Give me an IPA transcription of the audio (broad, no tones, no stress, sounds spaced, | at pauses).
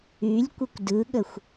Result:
y lʲ kʷ ə kʷ d ɯ ɠ ə xʷ